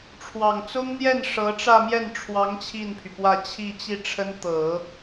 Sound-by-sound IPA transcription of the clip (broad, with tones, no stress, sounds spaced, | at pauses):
ʈ͡ʂʰ w ɑ˨˩ ŋ t͡s ʊ˥ ŋ n̪ j ɛ˥˩ n ʂ ɤ˧˥ ʈ͡ʂ ä˥˧ m j ɛ˥˩ n ʈ͡ʂʰ w ɑ˧˥ ŋ t͡ɕʰ i˥˩ n pʰ y˩ p w ä˥˧ t͡ɕʰ i˥˧ t͡ɕ i˥˩ ʈ͡ʂʰ ə˥ n t̪ ɤ˨˩˦